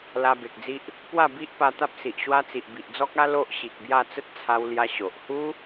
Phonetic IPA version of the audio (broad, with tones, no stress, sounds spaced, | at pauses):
l a˧ b e˨ k̚ d͡z i˦ ʔ | p w a˥˧ b i˦ ʔ p a˧ t̪ a˦ p̚ s i˨ ʔ ɕ w a˦ t͡s i˨ ʔ b i˨ ʔ d͡z ɔ˦ k̚ a˦ l o˦ ʔ ɕ i˨ k̚ b j a˥˧ t͡s ə˦ t̚ t͡sʰ a˧ w l j a˧ ɕ o˨ ʔ h u˦